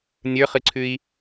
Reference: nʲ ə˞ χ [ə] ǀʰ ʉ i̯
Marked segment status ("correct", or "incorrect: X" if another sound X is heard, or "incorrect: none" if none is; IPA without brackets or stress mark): incorrect: ɨ